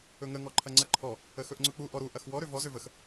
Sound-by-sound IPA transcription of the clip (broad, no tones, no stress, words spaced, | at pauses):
ɵŋə ŋɔǃʰɐŋ͡ǀɐǃʰɔ | əxɵʔŋ͡ǀɵk͡pu ʔɔɾu ʔɐxwɔ ɾøvɔ zøvəx